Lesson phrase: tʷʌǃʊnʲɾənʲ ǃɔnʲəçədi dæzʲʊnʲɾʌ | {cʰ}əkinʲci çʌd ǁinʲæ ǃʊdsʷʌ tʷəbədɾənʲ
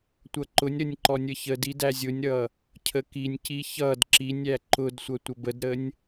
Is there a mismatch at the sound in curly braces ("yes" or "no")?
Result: no